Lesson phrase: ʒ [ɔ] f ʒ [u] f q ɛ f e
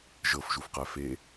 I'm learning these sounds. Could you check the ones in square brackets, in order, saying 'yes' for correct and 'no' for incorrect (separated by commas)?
no, yes